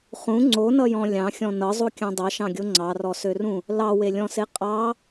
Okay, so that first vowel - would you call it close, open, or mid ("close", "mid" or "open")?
close